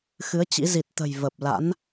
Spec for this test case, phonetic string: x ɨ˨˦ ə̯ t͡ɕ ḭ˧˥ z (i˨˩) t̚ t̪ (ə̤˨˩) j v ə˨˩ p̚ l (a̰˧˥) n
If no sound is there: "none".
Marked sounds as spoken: i˨˩, ə̤˨˩, a̰˧˥

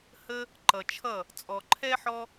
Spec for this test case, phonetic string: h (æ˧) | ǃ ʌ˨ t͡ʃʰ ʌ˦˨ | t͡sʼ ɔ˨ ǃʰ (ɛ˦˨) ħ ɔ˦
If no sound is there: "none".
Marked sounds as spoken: ə˧, ɛ˦

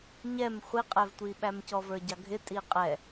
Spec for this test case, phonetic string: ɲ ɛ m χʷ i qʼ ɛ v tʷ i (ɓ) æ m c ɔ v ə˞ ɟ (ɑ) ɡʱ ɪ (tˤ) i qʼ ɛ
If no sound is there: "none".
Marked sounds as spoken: ɓ, ɑ, tʼ

